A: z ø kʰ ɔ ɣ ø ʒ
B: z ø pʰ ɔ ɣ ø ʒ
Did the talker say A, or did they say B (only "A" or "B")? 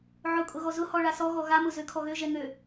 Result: A